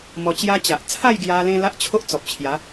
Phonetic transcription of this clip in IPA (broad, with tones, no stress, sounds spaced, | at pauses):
m ɔ˧ t͡ɕ j a˦ t͡ɕ a˨ ʔ t͡sʰ a˥˧ j ɡ j a˧ l ẽ˧ l a˦ ʔ t͡ɕʰ o˦ ʔ t͡s ɔ˨ p̚ t͡ɕʰ j a˨˦